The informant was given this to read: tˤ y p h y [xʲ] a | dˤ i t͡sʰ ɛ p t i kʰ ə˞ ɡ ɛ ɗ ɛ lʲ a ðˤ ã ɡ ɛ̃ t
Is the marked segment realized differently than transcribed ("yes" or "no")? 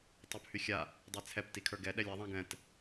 no